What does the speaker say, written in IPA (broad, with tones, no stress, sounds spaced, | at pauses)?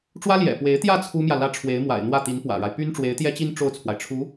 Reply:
ʈ͡ʂ w ä˥ l j ɛ̰˨˩ p w e˧˥ ɪ̯ t̪ j ä˥˩ t͡sʰ u˥ m j ä˨ l ä˥ ʈ͡ʂʰ w e˧˥ ɪ̯ m w a̰˨˩ ɪ̯ n̪ w ä˥˩ t̪ i˧˥ n p w ä̰˨˩ ɻ a˦ ɪ̯ p y˥ n ʈ͡ʂ w e˧˥ ɪ̯ t̪ j ɛ˥ t͡ɕ i˥ n ʈ͡ʂ o˥˩ ʊ̯ t͡sʰ w a˩ ɪ̯ ʈ͡ʂʰ u˧˥